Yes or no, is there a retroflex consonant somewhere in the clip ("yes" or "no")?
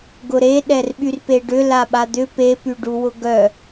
yes